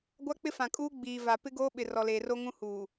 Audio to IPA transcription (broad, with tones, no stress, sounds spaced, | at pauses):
ɡʷ a˦ k͡p ɪ˦ f ã˨ kʼ uː˦ ɡ͡b iː˨ v a˨ p ɪ˦ ɡ oː˦ ɓ ɪ˨ r ɔ˨ l eː˨ r o˦ ŋ ũ˦ h uː˨